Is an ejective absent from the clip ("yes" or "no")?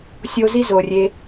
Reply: yes